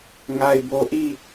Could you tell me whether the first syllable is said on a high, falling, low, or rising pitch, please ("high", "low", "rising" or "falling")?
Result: low